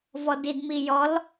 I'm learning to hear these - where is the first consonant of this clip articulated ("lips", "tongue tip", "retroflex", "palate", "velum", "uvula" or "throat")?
lips